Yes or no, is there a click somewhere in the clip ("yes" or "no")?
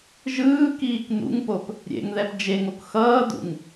no